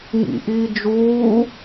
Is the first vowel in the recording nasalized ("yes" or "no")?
no